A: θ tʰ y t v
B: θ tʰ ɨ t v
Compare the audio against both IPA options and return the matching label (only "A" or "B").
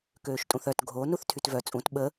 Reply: A